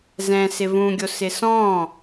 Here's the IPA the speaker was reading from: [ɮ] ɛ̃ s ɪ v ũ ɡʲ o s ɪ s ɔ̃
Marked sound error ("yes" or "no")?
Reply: yes